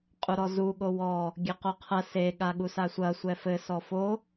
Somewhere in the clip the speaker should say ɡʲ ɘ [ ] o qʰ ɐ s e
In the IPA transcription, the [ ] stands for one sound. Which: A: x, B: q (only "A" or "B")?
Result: B